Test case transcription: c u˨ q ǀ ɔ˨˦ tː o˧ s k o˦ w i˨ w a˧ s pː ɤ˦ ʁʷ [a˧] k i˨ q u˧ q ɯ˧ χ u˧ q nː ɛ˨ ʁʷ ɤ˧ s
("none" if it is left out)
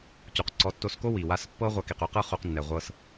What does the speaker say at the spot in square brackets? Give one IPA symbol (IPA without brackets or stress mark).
a˧